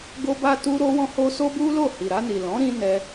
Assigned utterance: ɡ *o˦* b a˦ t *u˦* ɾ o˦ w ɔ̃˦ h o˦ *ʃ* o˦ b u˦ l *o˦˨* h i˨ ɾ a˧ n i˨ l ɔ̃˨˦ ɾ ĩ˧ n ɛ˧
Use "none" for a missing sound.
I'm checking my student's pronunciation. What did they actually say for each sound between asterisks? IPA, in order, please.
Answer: o˦, u˦, s, o˦˨

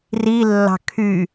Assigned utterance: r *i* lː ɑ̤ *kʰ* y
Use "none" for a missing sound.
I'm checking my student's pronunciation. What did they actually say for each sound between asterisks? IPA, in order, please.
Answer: i, kʰ

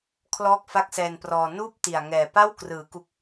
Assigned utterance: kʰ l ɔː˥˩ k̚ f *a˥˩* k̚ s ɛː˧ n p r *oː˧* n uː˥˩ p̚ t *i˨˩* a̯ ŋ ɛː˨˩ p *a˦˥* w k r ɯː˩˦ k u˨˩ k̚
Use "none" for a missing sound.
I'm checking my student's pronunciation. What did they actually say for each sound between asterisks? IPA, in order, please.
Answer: a˥˩, ɔː˧, i˨˩, a˥˩

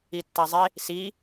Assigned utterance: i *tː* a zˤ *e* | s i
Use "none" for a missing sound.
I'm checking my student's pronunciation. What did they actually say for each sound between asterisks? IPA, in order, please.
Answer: tː, e

